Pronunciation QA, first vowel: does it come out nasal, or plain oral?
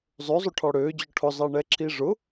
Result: oral